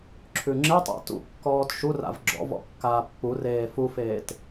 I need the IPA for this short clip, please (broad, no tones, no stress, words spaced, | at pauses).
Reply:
ǁʰʉŋ͡ǁetˤa̰ tṵkːɔːt ʃura̰v ɡ͡ǁɔ̰ vɔ̰kːaːpːureː fufeːt